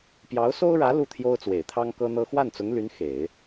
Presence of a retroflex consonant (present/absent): present